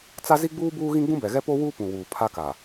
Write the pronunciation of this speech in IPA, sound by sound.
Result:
t͡s a˦ z i˦ ɡ͡b uː˦ b uː˦ ɣ ĩ˦ ɡ͡b ũ˦ b ɛ˨ ɣ ɛ˦ p o˦ w uː˦ p ũ˨ w uː˨ pʰ a˦ k a˨

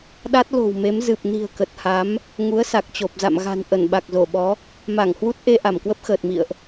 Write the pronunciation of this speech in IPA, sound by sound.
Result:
ɗ a˦˥ t̚ l o̤˨˩ w m e˨˦ m z ɨ˨˩ p̚ n i̤˨˩ ə̯ k ə˨˩ t̚ h a˨˦ m | ŋ u˨˦ ə̯ s a˨˩ k̚ t͡ɕ o˨˩ p̚ z a̰˧˨ m ɣ a̤˨˩ n ʔ ə˧˩ n ɓ a˨˩ k̚ z o˧˩ ɓ ɔ˨˦ | m a˧˩ ŋ h w u˦˥ t̚ ʔ e˧ ʔ a˧˩ m k w ə˦˥ p̚ x əː˨˩ t̚ m ḭ˧˨ ə̯ ʔ

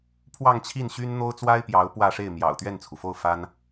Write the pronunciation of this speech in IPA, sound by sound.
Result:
pʰ w ɑ˥˧ ŋ t͡ɕʰ i˥˩ n ɕ y˥ n n̪ o˥ ʊ̯ t͡s w a˥ ɪ̯ p j ɑ˧˥ ʊ̯ p w ä˥˧ ʂ e˥˩ ɪ̯ m j ɑ̰˨˩ ʊ̯ t̪ ɥ ɛ˥˩ n t͡sʰ u˩ f o˥˩ ʊ̯ f a˥ n

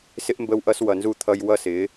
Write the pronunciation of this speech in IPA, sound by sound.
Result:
s ɪ˦ ʔ m b ə˦ w ʔ ʌ˦ s w ʌ˨ n z u˦˨ t̪ʰ ʌ˦ j w ʌ˦ s ɪ˨˦

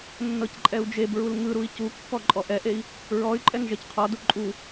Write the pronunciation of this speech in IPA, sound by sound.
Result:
nː ɤ c ǃʼ ɛ u̯ d͡ʒ e b ɹ u l ŋ ɯ ɾ u i̯ c u kː ɔ ǃʼ ɔ ʔ ɛ ʔ e i̯ | ɹ ɔ y̯ ǃʼ ɛ ŋ ʒ ɛ c qʰ ɔ d u ǃʼ u

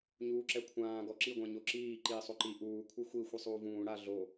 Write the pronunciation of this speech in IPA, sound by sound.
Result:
ɲ uː ǁ ɛ kʷʰ ãː ɡ ɔ ǁ i ɡʷ ã ɲ o ǁ iː ǃ iː sˤ o ǃ i ʔ uː kʷʰ ɯ xʷ i xʷ i sˤ uː v ũː ɽ a ɮ o

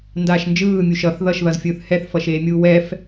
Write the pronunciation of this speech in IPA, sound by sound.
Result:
n d aː ʃ n d͡ʒ ɯː mʲ u ʃ ʌ θ ð ʌ ʃ ð ʌ z fʲ ɯː θ h ɛ θ f ʌ ʃ eː mʲ uː w ɛ f

